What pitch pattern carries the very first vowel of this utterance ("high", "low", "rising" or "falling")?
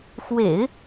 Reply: low